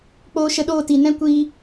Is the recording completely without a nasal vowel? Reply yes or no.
no